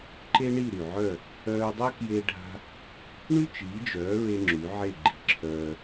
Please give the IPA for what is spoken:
ǃ e˥ ɳ i˥˩ ɾ y˩ ʕ œ˥˩ | œː˧ dˤ œ˥ k j e˥ ɖʱ a̤˥ | ɳ y˥ t͡ʃ iː˩˥ d͡ʒ œː˩˥ ɹ e˧ ŋ͡ǁ y˩˥ ʕ e˥˩ ɡ͡ǃ i̤˧ ǁʰ œː˧

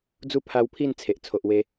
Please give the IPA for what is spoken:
d͡z u˥˧ pʰ a˧ w pʰ i˥˧ n t͡sʰ e˨ ʔ t͡sʰ o˨ ʔ w e˧

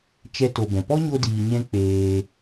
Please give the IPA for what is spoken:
t͡ʃ ɛ˧ t o˨ b ɛ̃˨ p ɔ˦ ɲ o˧ d iː˨ ɲ ɛ̃˧ k͡p eː˧

